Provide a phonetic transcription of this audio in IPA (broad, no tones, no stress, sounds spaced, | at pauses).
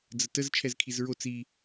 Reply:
d͡z ə t ə z t͡ʃʰ ɛ z kʰ i z ɹ o t͡s i